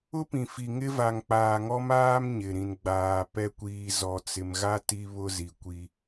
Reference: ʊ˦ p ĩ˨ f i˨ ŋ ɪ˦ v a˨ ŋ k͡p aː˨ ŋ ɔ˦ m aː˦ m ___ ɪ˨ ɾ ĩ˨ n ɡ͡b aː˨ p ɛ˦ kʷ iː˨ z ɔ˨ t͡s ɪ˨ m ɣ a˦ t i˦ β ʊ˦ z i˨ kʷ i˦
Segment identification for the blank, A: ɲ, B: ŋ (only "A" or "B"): A